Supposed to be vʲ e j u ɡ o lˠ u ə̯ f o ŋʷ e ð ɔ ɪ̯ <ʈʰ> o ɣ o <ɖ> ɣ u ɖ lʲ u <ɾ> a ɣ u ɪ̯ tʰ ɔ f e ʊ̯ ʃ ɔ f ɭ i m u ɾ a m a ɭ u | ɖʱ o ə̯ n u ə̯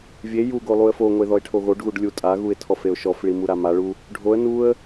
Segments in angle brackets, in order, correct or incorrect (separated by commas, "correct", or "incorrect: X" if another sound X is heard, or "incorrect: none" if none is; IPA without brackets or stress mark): correct, correct, incorrect: tʼ